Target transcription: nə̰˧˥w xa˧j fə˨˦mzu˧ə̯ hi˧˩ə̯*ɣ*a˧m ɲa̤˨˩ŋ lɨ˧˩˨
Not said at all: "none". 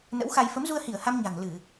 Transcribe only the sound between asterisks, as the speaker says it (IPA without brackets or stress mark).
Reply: h